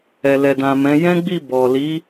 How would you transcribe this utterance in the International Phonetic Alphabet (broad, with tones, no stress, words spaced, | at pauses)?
ɛ˨lɛ˨dã˨mɛ̃˨˦ jɛ̃˦ɡ͡bi˦˨ bɔ˨ li˨˦